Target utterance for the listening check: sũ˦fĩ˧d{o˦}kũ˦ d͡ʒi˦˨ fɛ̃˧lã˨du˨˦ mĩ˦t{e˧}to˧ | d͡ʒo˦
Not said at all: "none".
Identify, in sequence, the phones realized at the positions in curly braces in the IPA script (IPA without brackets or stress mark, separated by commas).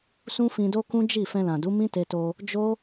o˦, e˧